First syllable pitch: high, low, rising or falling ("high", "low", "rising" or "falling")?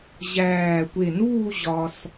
low